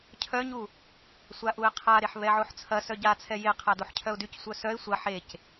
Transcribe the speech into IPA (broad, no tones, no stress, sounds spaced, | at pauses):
cʰ œ ɲ u | sʷ a ʔ u ɪ̯ qʰ a ɾ e ħ β ɛ ʕ o ħ t͡sʰ ɐ s œ ɟ a t͡sʰ ɛ j e qʰ a d o ħ cʰ œ ʊ̯ d y c sʷ œ s œ ɪ̯ sʷ ɐ ħ e c